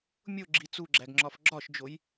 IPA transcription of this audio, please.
mʲoɡ͡ǁi t͡suɡ͡ǁæɡŋ͡ǁɒf ɡ͡ǁɒʃd͡ʒoj

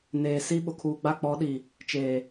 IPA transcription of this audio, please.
neː˨si˦ ɓʊ˨kʰuː˨ɡ͡ba˦˨ k͡pɔ˨˦ɗi˨ | t͡ʃeː˨

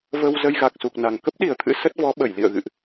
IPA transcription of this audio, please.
və˧w zə˧jɣa˨˩k̚su˨˩k̚na˨˩ŋ kə˦˥p̚ɗi˨˩ə̯t̪ʰɨ̰˧˥ sə˦˥t̚vɔ˨˦ɓə˧˩j lḭ˧˨ə̯ɣɨ̰˧˨ʔ

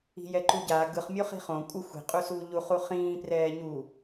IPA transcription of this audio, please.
i̤jɛǃuɟaː ɡɯχ mʲoχi̤χõ kʷʼɯ xʷi̤ qʼusuːʎuχ uχĩː prɛːɲu

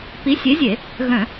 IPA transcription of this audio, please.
pi˨˥sʲe˨˥zʲe˧˩˧ | ɣœ̃˧˩˧

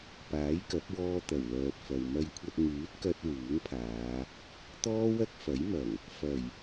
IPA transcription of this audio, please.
paː˨˥jkɐ˨˥p̚ wɔː˧ t̪ɐ˨˩wlœː˨t̚fɐ˨w mɐ˧jkʷʰɐ˧t̚ ŋyː˨˥t̚kɐ˧t̚ wuː˨˥ŋpʰaː˨˧ | t̪ɔː˥wɐ˥k̚fɐ˨˥jmɐ˨˩ŋ | fɐ˨˩j

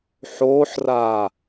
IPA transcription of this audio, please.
ħoːħraː

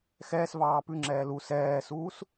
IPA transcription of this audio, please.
xɛːsvɑː pʉŋ͡ǁɛː lu sɛːsuːs

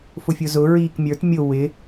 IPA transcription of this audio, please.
fʊfʲʊzʊ ɹiːkmʲə˞t mʲʊ wɪ

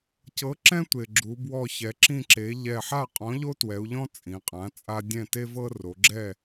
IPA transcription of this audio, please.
cɤ˩˥ǁɛ̃˦tʷe˩ ɡ͡ǁu˩˧bwɔ˧˩çɛ˩˧ ǁĩ˧˩ǁe˩˧ ʎɛ˧˩ħa˥˨ qʼɔ̃˩˥ʎo˦twɛ˩˧u̯ʎɔ̃˦ t͡sʼĩ˩˧qʼã˩˥t͡sʼa˦dʲɛ̃˥˨ te˦vɤ˦ ro˩˧ɡ͡ǁɛ˥˨

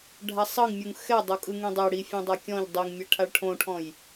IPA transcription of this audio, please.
ɖʱasˤɤŋ mʲuŋxɛ dˤokʼɯŋẽdˤɛ ɽi fʲõdˤakʲɔ̃ʎ dˤiŋmʲɛ ʈʰaɭʈʰõʈʰɔ̃j

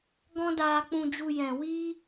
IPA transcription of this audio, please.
ɡɔ̃˦daː˧k͡pũ˧d͡ʒu˧ jɛ̃˨wiː˦

